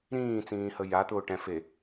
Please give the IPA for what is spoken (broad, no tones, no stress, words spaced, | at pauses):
ɾĩːt͡sĩːhə ja t̪ʊːʈɛ̃fe